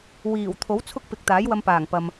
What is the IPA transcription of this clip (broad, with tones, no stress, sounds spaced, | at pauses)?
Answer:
w iː˨˩ w t̪ʰ o˨˥ w t͡sʰ ʊ˥ k̚ p ɪ˨ k̚ t̪ aː˨˥ j w ɐ˧ m p aː˨˩ ŋ p ɐ˨ m